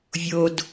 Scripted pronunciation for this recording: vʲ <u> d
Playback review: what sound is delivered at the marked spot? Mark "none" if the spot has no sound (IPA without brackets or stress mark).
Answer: o